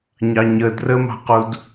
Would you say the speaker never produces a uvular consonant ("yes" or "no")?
no